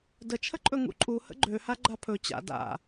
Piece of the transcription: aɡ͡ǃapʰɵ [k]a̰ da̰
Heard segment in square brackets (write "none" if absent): t͡ɕ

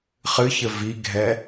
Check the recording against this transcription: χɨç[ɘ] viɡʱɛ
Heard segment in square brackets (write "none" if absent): ɘ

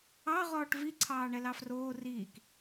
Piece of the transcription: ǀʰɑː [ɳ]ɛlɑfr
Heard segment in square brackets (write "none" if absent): ɳ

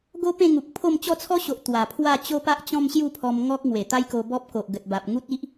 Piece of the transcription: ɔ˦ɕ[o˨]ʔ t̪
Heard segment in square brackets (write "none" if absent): o˨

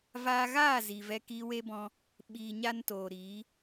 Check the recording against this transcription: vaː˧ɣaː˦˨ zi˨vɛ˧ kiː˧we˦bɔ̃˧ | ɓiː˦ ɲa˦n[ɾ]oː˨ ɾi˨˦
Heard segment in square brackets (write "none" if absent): t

